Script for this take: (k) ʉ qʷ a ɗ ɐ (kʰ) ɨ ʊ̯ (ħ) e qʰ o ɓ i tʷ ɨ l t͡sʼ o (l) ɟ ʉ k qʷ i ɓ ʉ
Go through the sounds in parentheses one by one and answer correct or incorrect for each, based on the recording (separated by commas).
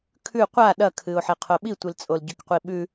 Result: incorrect, correct, correct, correct